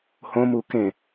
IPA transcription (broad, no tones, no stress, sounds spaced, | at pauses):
h õ m u k ẽ